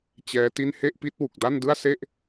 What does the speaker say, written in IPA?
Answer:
t͡ɕ ɛː˦˥ t i˥˩ n h e˥˩ ʔ p i˦˥ t̚ w u˨˩ k̚ d a˥˩ n d ɯ˥˩ a̯ s e˥˩ ʔ

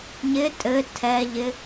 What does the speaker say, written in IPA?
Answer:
ɲ ɪ tʼ ɘ tʰ ɛ ʎ ɪ

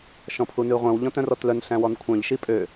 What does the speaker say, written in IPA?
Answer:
ʃ ɔ̃ pʰ u n ʉ ʁʷ œ̃ w ʎ ɔ̃ t œ̃ r ɔ t l œ n ɬ æ̃ w ɔ n kʷʰ œ̃ ʎ ʃ i pʼ ø

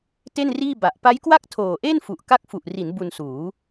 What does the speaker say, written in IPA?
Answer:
t e˥˩ n r iː˥˩ b a˨˩ ʔ p a˦˥ j k w a˥˩ k̚ tʰ oː˨˩ ʔ e˥˩ n f u˨˩ ʔ k a˦˥ k̚ f u˨˩ ʔ r i˩˦ n b u˧ n s uː˩˦

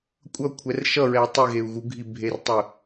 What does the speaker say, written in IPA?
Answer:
kʷʼ ʌ kʷʰ ɛ r ʃ ʌ ɹ ɛ u̯ tˤ i ɣ e u̯ ɣ u ɡʱ i bʱ e r tˤ ɯ

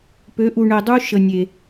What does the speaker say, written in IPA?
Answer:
p ø˨˦ ʔ u˨ ɳ e˨ dˤ u˦ ʃ ə˨ nʲ e˨

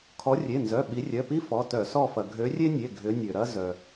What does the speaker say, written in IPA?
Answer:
kʰ ɔ˨˦ rʲ e˩˧˩ n z œ˩˧˩ ɓ i˨˦ rʲ œ˩˧˩ p i˥ f ɔ˩˧˩ t œ˧˩˧ s ɔ˦˨ f ɐ˩ ɡʱ ø˨˦ rʲ e˥ nʲ e˩˧˩ ɡʱ ʏ˨˦ nʲ ø˩ ɾ ɐ˥ z œ˩

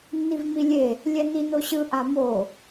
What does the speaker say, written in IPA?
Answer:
nː i v m i lʲ e | lʲ ɛ n i n o ɕ ɯ ʔ a m o

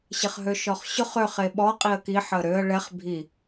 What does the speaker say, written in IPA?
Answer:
ɕ ɪ χ ɦ ø ʃ ɔ χ ɕ ʊ χ ø χ e ɓ ɔ qʼ i ə̯ k i ħ əː ɾ ø ə̯ ɭ ɛ χ bʱ i

